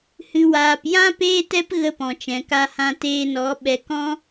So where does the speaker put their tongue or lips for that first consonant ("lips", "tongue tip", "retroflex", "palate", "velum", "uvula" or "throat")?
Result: throat